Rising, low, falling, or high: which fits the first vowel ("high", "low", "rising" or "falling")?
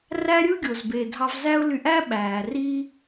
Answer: high